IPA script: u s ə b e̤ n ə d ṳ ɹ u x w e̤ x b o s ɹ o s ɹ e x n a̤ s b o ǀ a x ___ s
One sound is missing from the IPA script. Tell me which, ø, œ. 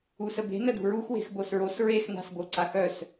œ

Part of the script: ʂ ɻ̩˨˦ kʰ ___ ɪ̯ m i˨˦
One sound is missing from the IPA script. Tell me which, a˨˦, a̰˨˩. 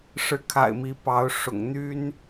a̰˨˩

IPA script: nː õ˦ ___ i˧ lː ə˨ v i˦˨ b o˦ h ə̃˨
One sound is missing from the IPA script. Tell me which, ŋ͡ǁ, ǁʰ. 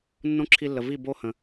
ǁʰ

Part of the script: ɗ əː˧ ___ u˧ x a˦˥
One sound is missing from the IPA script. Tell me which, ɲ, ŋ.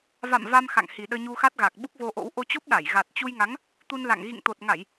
ɲ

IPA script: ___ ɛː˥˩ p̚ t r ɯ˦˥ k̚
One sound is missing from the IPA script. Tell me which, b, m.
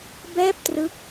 b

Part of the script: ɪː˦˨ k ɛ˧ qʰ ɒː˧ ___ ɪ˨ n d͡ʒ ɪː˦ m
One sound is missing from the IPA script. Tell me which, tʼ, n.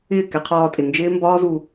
tʼ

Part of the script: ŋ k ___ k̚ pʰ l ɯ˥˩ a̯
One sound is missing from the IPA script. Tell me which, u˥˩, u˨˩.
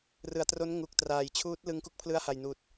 u˥˩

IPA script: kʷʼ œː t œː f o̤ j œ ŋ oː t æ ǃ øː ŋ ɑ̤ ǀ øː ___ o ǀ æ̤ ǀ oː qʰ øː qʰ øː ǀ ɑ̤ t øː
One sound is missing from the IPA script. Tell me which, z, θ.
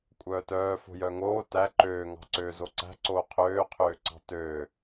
z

